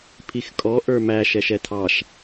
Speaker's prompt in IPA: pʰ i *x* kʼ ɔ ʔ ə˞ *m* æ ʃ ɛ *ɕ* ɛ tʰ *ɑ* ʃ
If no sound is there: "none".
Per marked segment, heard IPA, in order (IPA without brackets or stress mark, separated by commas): x, m, ʃ, ɑ